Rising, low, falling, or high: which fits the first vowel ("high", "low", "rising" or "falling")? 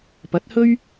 rising